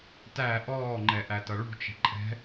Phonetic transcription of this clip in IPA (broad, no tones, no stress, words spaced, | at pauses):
tæ ʔɔːŋ͡ǃɛʔætʌ ɭṳt͡ʃɛ̤ ǃʼɛ̤